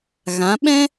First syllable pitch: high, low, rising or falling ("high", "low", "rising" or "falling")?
rising